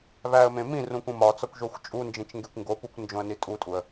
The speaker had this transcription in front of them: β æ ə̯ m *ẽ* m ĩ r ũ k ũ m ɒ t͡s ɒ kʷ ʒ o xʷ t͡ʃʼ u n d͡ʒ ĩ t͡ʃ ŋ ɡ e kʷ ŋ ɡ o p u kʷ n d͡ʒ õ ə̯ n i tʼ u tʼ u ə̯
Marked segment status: correct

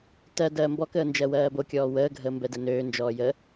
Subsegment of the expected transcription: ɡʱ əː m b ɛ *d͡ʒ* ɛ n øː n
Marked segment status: incorrect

